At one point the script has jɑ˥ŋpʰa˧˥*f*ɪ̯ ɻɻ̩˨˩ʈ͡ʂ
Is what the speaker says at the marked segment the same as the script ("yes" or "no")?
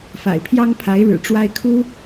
no